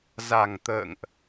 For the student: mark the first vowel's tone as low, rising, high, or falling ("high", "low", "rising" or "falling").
low